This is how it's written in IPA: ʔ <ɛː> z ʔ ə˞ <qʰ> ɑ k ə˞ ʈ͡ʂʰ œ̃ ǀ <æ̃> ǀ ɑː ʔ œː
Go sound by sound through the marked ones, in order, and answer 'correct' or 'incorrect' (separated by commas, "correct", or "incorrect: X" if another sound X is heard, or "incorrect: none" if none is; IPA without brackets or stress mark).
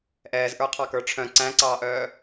correct, correct, correct